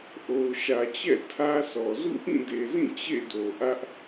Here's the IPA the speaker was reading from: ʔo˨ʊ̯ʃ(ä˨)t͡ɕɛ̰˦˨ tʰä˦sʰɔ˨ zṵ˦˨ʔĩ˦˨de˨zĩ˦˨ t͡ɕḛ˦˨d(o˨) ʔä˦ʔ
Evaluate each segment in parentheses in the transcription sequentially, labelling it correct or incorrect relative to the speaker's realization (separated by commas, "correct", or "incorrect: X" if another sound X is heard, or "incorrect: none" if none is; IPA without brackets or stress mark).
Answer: correct, correct